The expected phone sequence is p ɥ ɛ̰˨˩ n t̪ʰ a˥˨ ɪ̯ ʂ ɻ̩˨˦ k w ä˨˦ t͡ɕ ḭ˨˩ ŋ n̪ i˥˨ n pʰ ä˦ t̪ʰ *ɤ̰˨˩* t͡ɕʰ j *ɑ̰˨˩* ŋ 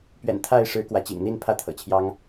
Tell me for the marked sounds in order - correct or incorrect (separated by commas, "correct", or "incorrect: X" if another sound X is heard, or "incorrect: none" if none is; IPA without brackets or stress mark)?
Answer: correct, incorrect: ɑ˦